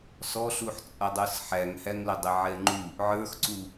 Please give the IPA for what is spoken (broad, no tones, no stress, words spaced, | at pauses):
sɔɬuħt͡sʼʌdˤə˞s ħæŋhæŋlʊ dˤɪʕɛŋ͡ǃu | ʕə˞xǀu